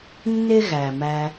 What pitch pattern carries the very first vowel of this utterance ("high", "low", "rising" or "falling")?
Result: high